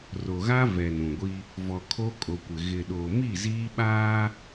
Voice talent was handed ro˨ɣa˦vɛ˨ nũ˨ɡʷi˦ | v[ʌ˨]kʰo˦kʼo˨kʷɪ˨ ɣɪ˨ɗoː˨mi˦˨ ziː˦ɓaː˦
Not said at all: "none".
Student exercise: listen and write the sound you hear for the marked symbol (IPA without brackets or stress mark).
ɔ˨